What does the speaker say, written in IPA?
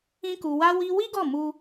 ĩ˦ k u˧ w a˦ w i˦ w i˦ ɡ ɔ˦˨ m u˧

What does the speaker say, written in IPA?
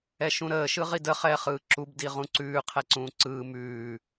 ɛ ʃ ũ ɾ əː ʃ ɯ ʁ i d ə χ ɛː χ ɯː ǁ u b d i ʁ ũ ǀ ʉː qʰ ɛ ǀ ũː ǀ ɯː m ʉː

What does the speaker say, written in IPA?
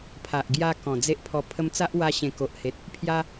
pʰ a˨ ʔ ɡ j a˧ k ɔ̃˨˩ d͡z e˦ ʔ pʰ ɔ˧ pʰ ə˧ m t͡s a˦ ʔ w a˧ ɕ ẽ˨˩ k o˨ ʔ h e˨ t̚ | pʰ j a˦

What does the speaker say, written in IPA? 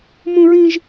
m ũ˥ ɹ ĩ˥ ʒ

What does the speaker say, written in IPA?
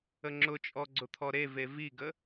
ə ŋ͡ǁ ʊ t͡ʃʼ ɔ ɡ͡ǀ ʊ t̪ʰ ɔ ɾ e v e v i ɡ ə

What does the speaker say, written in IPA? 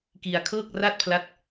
k i˧ a̯ kʰ ɤː˥˩ k̚ r a˥˩ t̚ pʰ l a˦˥ t̚

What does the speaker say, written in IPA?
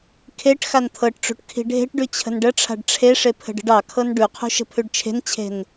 kʰ e ʈ x a n t̪ʰ ɤ ʈ ʈ͡ʂ ṳ ʈ kʰ i̤ ɖʱ e̤ ʈ ɖ ʉ t͡ɕʰ ə̤ n ɖ ə ʈ͡ʂʰ a̤ ɖ ʈ͡ʂʰ e ʂ e pʰ ə̤ ɖ ə̤ ɖ ɑ kʰ ɤ n ɖ ʉ qʰ ṳ ʃ ə̤ pʰ ʉ ɖ t͡ʃʰ e̤ n t͡ɕʰ e̤ n

